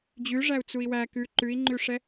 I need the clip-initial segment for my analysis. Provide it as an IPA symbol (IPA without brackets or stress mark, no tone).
d͡ʑ